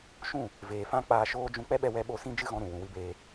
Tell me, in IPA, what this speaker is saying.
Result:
ʃũ˦˨ | veː˨fã˧ k͡paː˧ʃoː˦d͡ʒũ˦ k͡pɛ˦ɓɛ˧ wɛ˧ɓo˦˨sĩ˦ d͡ʒɨ˦ɣɔ̃˧ɾũ˨ wũ˨wɨ˧beː˧

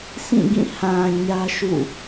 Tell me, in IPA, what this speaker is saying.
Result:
sĩ˦˨ɡĩ˦˨ hã˨ ɲä˦ʃṵ˦˨

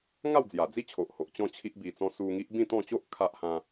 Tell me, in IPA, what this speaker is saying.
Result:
ŋa˥˧wd͡zja˨˩d͡zi˥˧t͡ɕʰo˨ʔ ho˨ʔt͡ɕɔ̃˥˧ t͡ɕʰi˦ʔbi˧t͡sɔ̃˦ su˧ŋi˦ʔ bĩ˥˧t̪ɔ̃˥˧ t͡ɕo˦ʔ kʰa˦ʔ hã˦

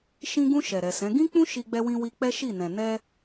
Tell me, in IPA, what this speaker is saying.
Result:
ʃĩ˧ ɡũ˧ ʃɛ˨ɾɛ˨sɛ̃˨˦ ɡĩ˦k͡pũ˦ ʃi˧ɡ͡bɛ˧wĩ˧ wi˧k͡pɛ˦ʃi˦˨nɛ̃˨ nɛ˧

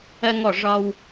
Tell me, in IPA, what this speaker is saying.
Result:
ɜ˧ŋɔ˧˩ ʐɒ˧w

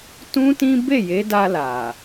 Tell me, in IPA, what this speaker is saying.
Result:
tũ˦tĩ˦ be˦˨je˨˦da˧ la˨

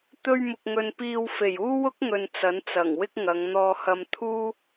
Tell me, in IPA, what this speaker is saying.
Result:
t̪ɵ˧ɥmʊ˨k̚ ŋɵ˧n piː˧w fe˨˩j uː˥wʊ˥k̚ŋɵ˨n t͡sɐ˨˥nt͡sɐ˨˩ŋwɪ˥k̚ ŋɐ˨˧ŋn̪ɔː˧hɐ˧m t̪ʰuː˥

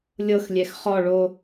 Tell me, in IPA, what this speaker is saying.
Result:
lʲɤxlʲɛx χɔ ɭo

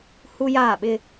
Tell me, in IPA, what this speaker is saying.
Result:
hu˦jaː˦˨ɓɪ˦

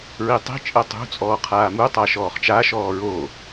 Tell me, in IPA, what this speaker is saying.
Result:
ɹitˤi̤t͡ʃʼɜ tˤṳt͡sʼɔː qʰaːmutˤa ʃɔːχt͡ʃaʃɔː ɹo

